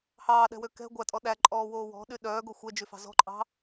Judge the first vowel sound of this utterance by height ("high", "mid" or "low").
low